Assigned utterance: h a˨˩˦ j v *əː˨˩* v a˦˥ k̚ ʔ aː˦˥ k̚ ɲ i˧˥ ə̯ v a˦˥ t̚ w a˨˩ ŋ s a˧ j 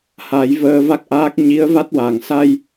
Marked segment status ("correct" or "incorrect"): incorrect